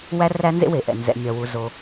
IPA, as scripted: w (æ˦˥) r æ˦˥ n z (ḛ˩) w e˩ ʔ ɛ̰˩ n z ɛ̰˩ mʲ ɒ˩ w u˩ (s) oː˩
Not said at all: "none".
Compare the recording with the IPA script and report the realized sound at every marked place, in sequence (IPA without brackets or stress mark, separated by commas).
æ˦˥, ḛ˦˥, z